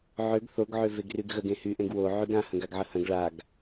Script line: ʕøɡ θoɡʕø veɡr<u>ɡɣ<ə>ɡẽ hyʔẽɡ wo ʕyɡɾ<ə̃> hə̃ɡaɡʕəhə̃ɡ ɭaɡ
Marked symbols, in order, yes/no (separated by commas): no, yes, no